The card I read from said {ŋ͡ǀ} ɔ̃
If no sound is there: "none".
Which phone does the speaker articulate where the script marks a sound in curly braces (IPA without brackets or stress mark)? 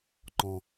ŋ͡ǃ